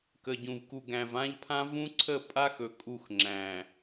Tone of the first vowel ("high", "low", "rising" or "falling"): low